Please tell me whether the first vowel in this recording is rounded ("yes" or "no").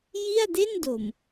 no